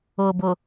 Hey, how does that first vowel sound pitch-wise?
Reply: low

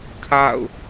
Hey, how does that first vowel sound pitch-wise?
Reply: falling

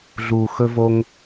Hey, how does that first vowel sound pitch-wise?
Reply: low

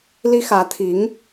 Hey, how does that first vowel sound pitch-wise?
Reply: high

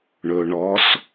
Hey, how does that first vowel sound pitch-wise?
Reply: low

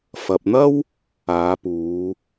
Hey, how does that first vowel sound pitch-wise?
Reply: low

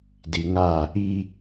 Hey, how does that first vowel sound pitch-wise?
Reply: low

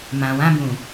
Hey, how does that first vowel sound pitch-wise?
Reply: low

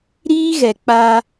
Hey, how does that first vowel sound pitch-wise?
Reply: high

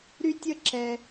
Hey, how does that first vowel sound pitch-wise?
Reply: high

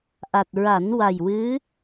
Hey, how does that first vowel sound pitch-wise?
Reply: low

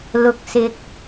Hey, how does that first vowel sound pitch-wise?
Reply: low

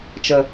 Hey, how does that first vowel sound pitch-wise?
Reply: low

